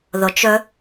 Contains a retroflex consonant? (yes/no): no